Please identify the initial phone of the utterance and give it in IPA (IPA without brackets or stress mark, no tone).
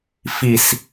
f